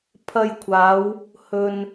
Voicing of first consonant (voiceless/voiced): voiceless